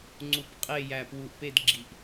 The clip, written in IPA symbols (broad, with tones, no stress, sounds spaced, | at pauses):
ŋ͡ǀ u˧ p qʼ e˥˧ j æ˧˩ p w u˧˩ ʔ p e˥˧ d ɡ͡ǁ i˧˩ ʔ